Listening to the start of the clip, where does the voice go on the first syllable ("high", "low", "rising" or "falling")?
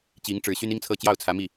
rising